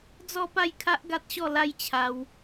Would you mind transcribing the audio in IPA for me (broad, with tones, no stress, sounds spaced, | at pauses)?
d͡z ɔ˦ p a˥˧ j kʰ a˦ ʔ ɡ a˦ t̚ ɕ ɔ˥˧ l a˦ j t͡ɕʰ a˧ w